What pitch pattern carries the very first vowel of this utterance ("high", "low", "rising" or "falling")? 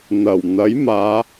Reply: low